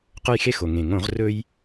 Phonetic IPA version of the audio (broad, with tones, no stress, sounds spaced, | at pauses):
q ɵ˦˨ j x e˦ x o˩ ŋ ẽ˩ ŋ õ˧˩˧ ʁ r ɵ˦ j